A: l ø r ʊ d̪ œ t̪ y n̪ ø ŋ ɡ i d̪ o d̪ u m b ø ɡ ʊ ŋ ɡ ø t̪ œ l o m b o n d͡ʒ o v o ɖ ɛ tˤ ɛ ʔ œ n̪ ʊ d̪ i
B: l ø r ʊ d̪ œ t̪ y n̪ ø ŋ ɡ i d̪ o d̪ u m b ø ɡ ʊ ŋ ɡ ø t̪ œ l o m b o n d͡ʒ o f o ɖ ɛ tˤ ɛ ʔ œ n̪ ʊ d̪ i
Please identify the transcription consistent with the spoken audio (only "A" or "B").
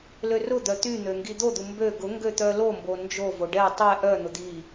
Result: A